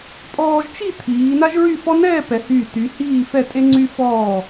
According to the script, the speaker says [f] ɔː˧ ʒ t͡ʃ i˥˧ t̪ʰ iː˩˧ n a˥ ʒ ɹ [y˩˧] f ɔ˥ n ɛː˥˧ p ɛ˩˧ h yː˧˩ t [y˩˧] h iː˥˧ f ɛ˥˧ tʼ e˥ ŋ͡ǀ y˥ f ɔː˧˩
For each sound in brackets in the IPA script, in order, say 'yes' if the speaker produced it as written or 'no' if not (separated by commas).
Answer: no, no, yes